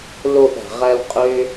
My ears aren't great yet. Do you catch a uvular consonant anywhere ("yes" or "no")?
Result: yes